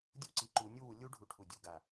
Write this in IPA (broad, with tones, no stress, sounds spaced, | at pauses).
dʲ u˥˧ ǀ i˨˦ ǃ u˨˦ nʲ u˥˧ w u˨˦ lʲ u˥ ɖʱ u˧˩ ʈʰ u˧˩ dʲ u˥˩ ɡ a˧˩